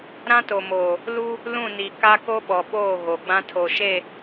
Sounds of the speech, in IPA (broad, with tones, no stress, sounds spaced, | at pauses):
ɾ ã˦ t o˨ m oː˨ | l u˦ | l ũ˦˨ n i˨ k a˦ k o˦ ɓ ɔ˨ ɓ oː˦˨ ɣ o˨ ɡ͡b ã˦ tʰ o˨ ʃ e˦˨